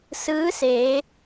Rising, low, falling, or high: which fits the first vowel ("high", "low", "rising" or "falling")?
rising